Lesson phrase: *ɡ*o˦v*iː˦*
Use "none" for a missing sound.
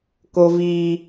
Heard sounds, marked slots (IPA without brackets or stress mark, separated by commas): k, iː˦